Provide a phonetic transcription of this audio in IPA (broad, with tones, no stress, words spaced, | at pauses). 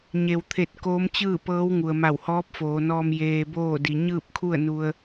ɲe˩wt̪ʰe˧˩t̚ koː˧˥mt͡ɕɯː˥˨ pɤː˧˥wŋu˩ə̯ ma˧˩whɔː˧˥p̚foː˩˧nɔː˧m jeː˧boː˥˨di˩˧ ɲɯː˥˨p̚kʰu˥˨ə̯nu˧ə̯